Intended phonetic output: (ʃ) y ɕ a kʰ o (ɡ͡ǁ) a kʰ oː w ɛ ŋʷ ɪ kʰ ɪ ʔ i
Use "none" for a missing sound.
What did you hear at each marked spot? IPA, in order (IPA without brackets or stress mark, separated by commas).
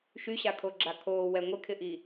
ʃ, ɡ͡ǁ